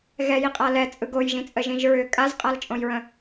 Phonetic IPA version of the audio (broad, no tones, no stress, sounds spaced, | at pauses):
ɣ ɛ j i qʼ a l ɛ t͡sʼ ɯ ɡ o j ʒ ĩ t͡sʼ ə ʒ ĩ ʒ ɹ ʏ kʼ a z qʼ a l t͡ʃʼ õ j ɹ ə̃